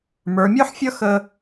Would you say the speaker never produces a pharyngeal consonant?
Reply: no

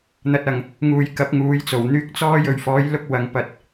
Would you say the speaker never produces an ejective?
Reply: yes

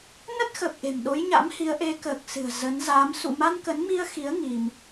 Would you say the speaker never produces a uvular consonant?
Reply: yes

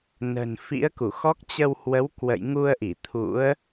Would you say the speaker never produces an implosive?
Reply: yes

